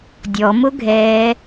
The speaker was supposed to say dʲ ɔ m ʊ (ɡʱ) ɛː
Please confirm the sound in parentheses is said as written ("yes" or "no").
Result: yes